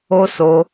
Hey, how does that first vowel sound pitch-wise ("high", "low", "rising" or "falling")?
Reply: high